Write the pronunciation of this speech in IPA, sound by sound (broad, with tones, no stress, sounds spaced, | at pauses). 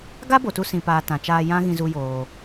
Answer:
ɡ a˦ b o˨ t u˧ s ĩ˨ p aː˨ t ã˨ t͡ʃ aː˧ j ã˦ ɣ ĩ˧ z u˧ j oː˨